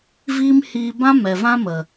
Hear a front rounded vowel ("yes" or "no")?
no